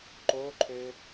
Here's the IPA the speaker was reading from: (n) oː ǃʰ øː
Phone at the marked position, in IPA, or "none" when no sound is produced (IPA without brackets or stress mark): ǃ